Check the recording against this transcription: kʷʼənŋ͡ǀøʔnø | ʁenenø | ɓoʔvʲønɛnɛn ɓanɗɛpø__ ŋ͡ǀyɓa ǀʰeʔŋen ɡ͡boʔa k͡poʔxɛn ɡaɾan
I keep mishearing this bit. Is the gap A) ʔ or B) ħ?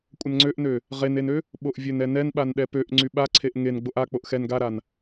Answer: A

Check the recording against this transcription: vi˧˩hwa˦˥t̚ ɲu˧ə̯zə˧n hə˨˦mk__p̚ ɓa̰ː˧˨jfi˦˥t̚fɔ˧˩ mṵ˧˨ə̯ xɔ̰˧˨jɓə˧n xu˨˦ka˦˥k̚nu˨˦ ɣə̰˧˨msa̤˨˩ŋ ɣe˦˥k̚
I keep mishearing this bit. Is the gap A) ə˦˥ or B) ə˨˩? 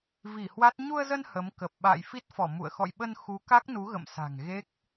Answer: B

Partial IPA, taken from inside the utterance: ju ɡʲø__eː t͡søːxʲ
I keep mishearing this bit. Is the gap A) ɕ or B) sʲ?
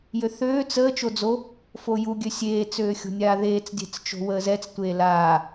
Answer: B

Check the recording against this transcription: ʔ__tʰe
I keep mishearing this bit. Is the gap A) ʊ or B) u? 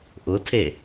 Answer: A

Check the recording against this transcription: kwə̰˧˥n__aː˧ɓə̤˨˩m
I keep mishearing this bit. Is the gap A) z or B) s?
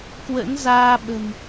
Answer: A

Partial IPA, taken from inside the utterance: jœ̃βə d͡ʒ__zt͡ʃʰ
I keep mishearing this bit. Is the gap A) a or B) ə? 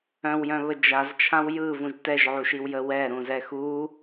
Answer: A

